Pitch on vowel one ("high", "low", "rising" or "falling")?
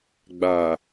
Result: low